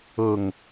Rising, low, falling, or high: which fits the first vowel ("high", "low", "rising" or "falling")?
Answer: low